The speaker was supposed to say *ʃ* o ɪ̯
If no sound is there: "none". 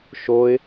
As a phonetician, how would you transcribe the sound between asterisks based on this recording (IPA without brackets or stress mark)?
ʃ